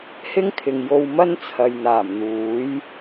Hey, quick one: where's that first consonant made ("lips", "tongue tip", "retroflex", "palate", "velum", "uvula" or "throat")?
throat